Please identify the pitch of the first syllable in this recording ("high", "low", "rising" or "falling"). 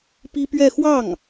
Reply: high